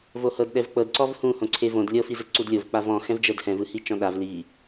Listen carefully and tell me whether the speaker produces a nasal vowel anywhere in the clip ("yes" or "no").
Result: yes